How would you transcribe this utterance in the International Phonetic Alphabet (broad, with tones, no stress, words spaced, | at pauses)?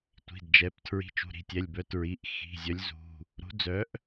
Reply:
tʷi̤˩˧˩dd͡ʒɛ˩˧˩p tʰɹi̤˨˥t͡ʃṳ˩˧˩ ɾi̤˩˧˩tʲɛ˩˧˩lʲbœ˨˥ tɹi˩˧˩ʔ xi̤˩˧˩zʲœ˨˥lʲzṳ˩˧˩ | ɾṳ˨˥d͡zœ˨˥ʔ